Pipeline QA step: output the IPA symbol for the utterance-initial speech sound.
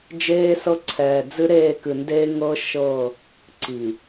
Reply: d͡ʒ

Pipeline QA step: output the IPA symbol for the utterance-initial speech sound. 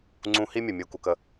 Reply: ŋ͡ǀ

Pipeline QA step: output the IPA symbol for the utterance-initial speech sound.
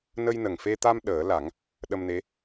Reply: n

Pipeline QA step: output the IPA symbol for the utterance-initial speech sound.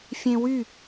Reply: fʲ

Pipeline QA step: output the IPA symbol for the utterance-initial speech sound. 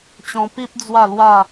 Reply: t͡ɕ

